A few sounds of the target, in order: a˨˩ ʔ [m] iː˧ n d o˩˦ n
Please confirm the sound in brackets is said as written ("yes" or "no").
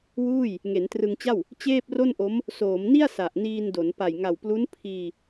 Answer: no